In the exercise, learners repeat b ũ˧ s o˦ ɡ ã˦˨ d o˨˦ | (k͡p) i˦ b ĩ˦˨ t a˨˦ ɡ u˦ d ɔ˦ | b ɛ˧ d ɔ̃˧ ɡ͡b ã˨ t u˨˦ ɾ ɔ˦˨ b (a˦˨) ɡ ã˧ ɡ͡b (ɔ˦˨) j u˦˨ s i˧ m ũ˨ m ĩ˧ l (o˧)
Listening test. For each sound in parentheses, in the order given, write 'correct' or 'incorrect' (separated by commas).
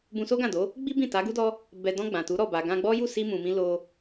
incorrect, incorrect, incorrect, correct